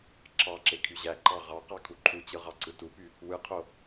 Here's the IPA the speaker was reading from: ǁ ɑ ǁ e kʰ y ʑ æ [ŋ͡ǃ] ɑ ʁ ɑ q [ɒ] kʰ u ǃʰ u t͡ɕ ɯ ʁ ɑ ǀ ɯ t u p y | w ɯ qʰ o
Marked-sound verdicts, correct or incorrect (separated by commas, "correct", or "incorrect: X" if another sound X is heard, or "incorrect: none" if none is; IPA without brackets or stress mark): incorrect: ǃ, incorrect: ɑ